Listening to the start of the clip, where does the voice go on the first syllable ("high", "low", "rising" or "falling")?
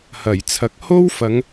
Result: low